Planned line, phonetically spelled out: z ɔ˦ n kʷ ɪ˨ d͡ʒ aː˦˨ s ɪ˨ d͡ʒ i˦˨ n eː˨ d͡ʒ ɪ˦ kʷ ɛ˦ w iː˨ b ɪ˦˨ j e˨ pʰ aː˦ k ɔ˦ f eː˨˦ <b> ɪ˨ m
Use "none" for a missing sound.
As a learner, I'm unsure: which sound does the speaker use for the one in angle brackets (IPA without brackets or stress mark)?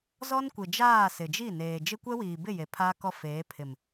pʰ